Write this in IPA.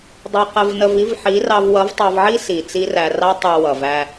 dˤ ʌ˧ q ə˧ v n ə˧ v i˦ v ħ i˨˦ r ɑ˧ v w ʌ˨˦ v tˤ ɑ˧ v ʕ i˦ s i˨ t͡s i˦ r æ˧ r ɑ˦ tˤ ə˞˧ w ʌ˨ v æ˧

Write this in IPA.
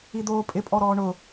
i d̪ oː pʼ ɪ pʼ ɔ ɾ ɔː ɳ ʊ

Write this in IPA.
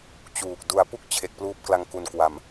t͡ɕ uː˨˩ k̚ d u˧ a̯ p u˥˩ k̚ t͡ɕʰ e˨˩ k̚ p l uː˦˥ p̚ k l a˧ ŋ k u˨˩ n k w a˨˩ m

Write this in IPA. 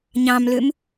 ɲ ɑ̃ m l ø m

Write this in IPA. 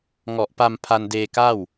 ŋ ɔ˨˩ ʔ p a˧ m pʰ a˧ n d eː˧ k a˥˩ w

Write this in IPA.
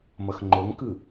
m ʌ x ŋ͡ǃ o ŋ k ɯ

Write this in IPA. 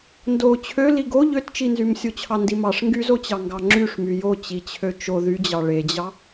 n d o t͡ɕʰ ø l i ɡ o ʎ ø t t͡ʃ i n z y m sʲ o t͡ɕʰ ɑ n d i m ɑ ʂ ŋ ɡ y z o t͡ɕ ɑ ŋ ɡ ɑ ŋ͡ǁ y ʂ m y j o t͡ɕ i t͡ɕʰ ø t͡ʃ o ð y d͡ʑ ɑ ɭ e d͡ʑ ɑ

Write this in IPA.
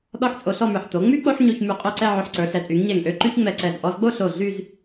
ɗ ɔ˥˧ ħ t͡sʼ o˧ ɬ ɔ˥˧ m ə˞˧˩ ħ t o˩˧ ŋ͡m y˥ k͡p o˥ ħ ɲ o˧ ç m y˧˩ qʼ o˥˧ ǀ ɛ˥˧ ʕ ø˧ ħ ǀ ə˞˩˧ ɬ ɛ˩˧ tʼ y˩˧ ŋ ɲ ɛ˧˩ ŋ ʔ ø˥ ǃ y˥ ç ŋ͡m ɛ˧ ǀ ɛ˧˩ z ʔ ɔ˧ z ɡ͡b o˥˧ ɬ o˧˩ ɮ y˥˧ z

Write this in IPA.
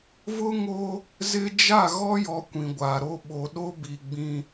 v ʊ˦ ŋ o˦ | z ɪ˦ d͡ʒ a˦˨ ɣ ɔ˦ j ɔ˨ kʷ ĩ˨ ɡʷ a˨ ɾ o˦ ɓ o˨ ɗ o˦ b i˨ ɡ͡b ĩ˦

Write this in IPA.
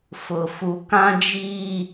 f ʊ˨ f u˨ k ã˦ d͡ʒ iː˦

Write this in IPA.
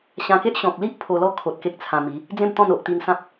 ɕ ã˧ k e˦ ʔ ɕ ɔ̃˨ k̚ l i˦ ʔ pʰ o˧ l ɔ˥˧ kʰ o˨ t̚ k e˦ k̚ t͡sʰ ã˧ m i˨˦ | d͡z ẽ˥˧ m t̪ ɔ̃˥˧ n o˦ ʔ t̪ i˦ n s ã˦ p̚

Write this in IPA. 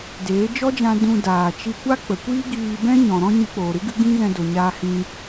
d eː˨˦ d͡ʒ ɔ˦ d͡ʒ ã˧ d ũ˧ d aː˨ t͡ʃ i˧ kʷ a˦ k͡p ə˨ kʷ iː˦ ɡ iː˧ b ɛ̃˦ ɲ ɔ̃˨ ɾ ɔ̃˦ ɲ ɨ˧ k͡p oː˨ ɾ ɨ˦ ɡ ɨ˦ ɡ ĩ˦ ɣ ɛ̃˧ d o˨ ɲ aː˧ h ĩ˧

